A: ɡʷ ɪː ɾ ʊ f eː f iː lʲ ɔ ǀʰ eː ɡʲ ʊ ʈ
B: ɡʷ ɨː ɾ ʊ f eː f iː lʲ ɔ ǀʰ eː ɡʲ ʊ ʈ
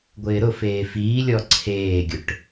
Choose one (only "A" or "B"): A